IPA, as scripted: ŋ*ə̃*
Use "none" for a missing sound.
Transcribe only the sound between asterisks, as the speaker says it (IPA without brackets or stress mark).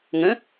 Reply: ə̃